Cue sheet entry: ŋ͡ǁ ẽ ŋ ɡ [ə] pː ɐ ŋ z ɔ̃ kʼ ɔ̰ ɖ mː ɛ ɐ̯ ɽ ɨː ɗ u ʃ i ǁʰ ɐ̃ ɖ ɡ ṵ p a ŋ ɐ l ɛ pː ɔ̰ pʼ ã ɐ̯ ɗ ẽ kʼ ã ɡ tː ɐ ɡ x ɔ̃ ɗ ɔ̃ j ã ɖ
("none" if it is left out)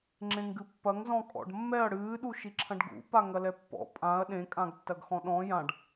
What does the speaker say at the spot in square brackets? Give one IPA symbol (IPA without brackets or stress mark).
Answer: ɨ